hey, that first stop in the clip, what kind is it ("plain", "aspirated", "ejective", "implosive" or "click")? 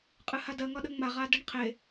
ejective